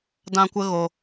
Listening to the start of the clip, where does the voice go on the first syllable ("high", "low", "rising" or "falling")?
high